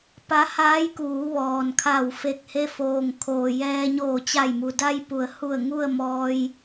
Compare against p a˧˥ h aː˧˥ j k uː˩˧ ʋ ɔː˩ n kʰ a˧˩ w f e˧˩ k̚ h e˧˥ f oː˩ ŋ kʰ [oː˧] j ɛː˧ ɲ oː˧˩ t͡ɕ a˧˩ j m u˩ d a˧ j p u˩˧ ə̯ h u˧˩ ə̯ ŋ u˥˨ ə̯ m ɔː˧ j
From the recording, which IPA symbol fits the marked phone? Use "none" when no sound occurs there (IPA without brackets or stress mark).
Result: oː˩